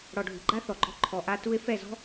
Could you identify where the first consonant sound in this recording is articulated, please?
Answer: retroflex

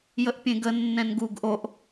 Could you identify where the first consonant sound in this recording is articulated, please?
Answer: palatal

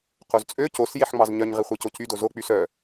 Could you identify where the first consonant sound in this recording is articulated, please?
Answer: uvular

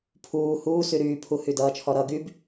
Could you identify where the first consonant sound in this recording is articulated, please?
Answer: labial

